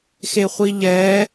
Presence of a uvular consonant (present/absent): present